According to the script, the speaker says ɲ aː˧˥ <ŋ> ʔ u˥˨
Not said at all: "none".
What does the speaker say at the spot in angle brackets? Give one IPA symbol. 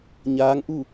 ŋ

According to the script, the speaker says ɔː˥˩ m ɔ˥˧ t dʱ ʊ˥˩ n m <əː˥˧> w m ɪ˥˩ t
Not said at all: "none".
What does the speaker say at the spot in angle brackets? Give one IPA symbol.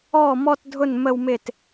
ə˥˧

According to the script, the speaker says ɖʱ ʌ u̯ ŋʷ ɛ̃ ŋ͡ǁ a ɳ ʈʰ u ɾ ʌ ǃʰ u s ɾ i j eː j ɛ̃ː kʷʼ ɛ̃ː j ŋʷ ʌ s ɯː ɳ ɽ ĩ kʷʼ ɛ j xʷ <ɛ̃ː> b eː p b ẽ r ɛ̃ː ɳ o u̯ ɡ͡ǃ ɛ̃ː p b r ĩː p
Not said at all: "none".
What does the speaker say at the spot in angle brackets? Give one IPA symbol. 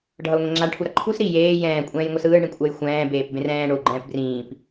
ɛ̃ː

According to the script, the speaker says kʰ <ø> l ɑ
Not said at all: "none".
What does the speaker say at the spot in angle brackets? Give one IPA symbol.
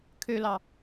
ø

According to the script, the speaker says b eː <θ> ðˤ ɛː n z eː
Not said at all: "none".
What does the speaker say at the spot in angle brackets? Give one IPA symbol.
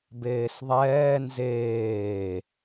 s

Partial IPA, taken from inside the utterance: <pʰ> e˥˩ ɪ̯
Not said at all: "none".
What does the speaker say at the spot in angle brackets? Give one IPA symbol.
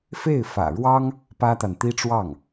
f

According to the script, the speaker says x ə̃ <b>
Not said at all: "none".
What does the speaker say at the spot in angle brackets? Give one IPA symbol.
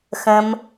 m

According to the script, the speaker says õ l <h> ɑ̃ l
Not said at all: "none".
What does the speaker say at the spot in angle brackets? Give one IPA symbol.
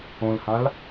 h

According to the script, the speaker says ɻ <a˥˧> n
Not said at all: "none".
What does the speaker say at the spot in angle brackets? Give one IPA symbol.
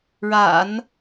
a̰˨˩˦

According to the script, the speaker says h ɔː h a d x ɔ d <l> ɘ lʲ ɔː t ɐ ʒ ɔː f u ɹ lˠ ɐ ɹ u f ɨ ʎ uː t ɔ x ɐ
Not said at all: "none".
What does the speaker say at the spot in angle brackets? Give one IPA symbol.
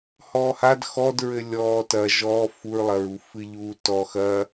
ɹ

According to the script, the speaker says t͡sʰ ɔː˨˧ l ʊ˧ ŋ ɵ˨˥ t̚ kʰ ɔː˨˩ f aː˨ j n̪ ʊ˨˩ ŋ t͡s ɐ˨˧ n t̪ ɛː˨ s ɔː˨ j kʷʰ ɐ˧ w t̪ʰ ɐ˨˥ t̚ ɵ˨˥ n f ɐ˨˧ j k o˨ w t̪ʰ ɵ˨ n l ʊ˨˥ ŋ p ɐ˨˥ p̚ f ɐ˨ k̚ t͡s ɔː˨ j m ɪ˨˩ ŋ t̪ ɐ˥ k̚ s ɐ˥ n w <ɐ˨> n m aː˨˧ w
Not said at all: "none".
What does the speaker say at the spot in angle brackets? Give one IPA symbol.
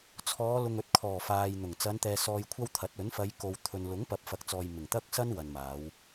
ɐ˨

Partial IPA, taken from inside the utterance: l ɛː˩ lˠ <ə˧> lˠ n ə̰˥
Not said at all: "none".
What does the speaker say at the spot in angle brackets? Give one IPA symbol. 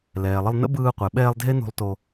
ə˧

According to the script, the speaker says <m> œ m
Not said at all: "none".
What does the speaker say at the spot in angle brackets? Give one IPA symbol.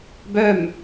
b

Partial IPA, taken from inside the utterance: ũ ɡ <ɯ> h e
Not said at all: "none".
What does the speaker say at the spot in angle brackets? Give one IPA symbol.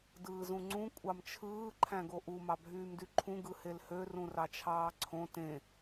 ɯ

